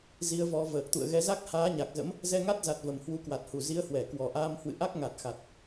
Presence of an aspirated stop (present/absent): absent